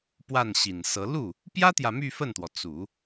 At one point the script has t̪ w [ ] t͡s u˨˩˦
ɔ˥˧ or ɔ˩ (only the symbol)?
ɔ˩